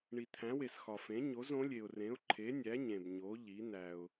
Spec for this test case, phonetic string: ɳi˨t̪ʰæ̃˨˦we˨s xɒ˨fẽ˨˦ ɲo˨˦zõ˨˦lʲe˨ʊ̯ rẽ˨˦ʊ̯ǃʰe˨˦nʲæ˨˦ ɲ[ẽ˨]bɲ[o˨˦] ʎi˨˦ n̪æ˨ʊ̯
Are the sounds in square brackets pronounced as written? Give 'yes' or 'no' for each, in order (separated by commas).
yes, yes